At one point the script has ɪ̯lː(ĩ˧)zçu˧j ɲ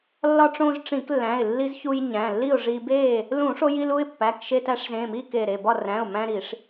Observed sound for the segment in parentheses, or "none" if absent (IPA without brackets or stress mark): i˧